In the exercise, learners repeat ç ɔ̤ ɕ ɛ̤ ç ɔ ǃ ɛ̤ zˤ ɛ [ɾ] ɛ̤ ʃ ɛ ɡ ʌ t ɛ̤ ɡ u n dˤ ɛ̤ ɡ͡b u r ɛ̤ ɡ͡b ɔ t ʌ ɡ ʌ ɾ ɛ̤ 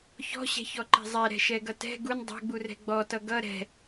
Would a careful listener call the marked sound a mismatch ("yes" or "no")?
no